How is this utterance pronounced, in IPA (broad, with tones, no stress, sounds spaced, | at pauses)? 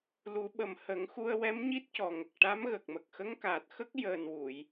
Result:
l u˨˩˦ ɓ ə˨˩ m h ə˨˩˦ ŋ x u˧ ə̯ w ɛ˧˥ m ɲ i˦˥ t̚ c ɔ˨˩ ŋ ə˨˩ k̚ ʈ a˧˥ m ɣ ə˨˩ k̚ m ə˨˩ k̚ x ə˧˥ ŋ k aː˨˩ t̚ x ə˦˥ k̚ j əː˨˩ n w u˨˩˨ j